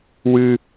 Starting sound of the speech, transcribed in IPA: w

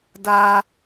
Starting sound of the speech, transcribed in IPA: d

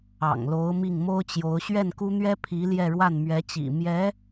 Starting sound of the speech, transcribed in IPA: ɑ̰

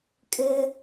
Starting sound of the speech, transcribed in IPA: kʼ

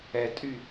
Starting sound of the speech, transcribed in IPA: ɛ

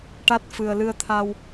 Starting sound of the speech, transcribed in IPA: ʈ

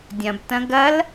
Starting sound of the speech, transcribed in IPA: dʲ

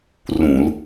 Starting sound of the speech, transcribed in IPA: r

